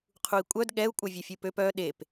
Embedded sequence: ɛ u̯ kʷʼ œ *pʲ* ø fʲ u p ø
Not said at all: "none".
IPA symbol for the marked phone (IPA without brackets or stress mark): vʲ